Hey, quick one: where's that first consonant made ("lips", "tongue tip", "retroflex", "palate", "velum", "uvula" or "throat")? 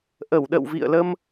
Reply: throat